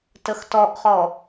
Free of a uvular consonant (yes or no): no